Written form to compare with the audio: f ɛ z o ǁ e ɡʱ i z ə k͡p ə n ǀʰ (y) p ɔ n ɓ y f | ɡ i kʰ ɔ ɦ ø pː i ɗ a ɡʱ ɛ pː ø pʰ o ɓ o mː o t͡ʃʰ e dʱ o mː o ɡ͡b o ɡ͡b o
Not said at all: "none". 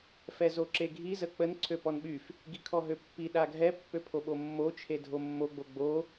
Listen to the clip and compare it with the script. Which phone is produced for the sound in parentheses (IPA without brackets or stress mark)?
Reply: ø